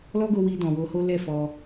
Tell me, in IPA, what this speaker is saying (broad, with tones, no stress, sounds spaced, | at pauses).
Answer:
l ɔ˦ ɡ o˧ w i˧ d ɔ̃˨ w o˧ h o˦ l ɛ˦˨ f ɔ˧